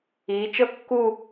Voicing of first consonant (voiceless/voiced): voiceless